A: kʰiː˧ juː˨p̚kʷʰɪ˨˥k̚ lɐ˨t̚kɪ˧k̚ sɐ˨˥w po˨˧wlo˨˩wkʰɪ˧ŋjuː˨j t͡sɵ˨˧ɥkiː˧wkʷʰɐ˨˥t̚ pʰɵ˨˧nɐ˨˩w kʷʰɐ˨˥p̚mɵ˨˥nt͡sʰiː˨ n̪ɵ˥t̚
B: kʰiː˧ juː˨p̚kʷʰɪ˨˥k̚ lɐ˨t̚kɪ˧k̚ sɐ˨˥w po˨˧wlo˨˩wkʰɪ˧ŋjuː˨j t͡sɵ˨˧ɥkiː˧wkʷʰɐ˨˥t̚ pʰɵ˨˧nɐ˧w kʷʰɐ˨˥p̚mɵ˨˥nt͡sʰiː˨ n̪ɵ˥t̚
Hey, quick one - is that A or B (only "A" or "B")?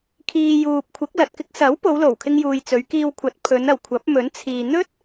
A